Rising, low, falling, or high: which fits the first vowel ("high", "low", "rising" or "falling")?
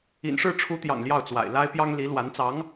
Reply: low